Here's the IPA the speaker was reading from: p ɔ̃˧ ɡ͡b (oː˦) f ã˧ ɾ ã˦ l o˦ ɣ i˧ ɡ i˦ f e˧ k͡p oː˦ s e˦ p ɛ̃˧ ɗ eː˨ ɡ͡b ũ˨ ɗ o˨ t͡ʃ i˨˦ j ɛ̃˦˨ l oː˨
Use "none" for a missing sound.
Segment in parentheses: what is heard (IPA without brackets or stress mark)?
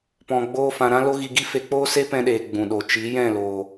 oː˦